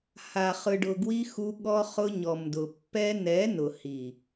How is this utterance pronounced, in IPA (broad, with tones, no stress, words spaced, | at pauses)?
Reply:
ha˨ χɯ˨ɖʊ˨ɡwi˧ xu˧ɠɔ˧ χʊ˧ɲɔ˨mdʊ˨ pːɛ˧nɛ˨˦ nʊ˨hi˨